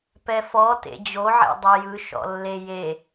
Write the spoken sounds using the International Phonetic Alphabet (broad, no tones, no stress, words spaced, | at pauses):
pɛfɔ tḛd͡ʑoʕḛ dˤejɯ ʃɔ̰lːeje